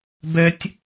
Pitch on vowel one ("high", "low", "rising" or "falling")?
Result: high